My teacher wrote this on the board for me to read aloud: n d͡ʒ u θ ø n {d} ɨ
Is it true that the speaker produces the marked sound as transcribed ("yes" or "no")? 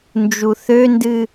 yes